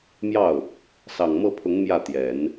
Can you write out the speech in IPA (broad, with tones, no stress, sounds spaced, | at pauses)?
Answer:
m j ɑ˥˩ ʊ̯ | s ɑ˨˩ ŋ m ɤ˥˩ pʰ ʊ˧˥ ŋ m j ä˥˩ t̪ j ɛ˨˩˦ n